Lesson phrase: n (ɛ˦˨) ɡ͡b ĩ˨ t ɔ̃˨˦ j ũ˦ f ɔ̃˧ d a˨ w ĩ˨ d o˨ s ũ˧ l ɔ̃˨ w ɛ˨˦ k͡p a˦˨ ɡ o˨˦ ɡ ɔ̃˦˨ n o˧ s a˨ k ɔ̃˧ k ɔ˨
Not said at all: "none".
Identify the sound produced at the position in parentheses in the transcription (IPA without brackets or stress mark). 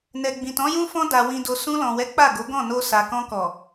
ɛ˨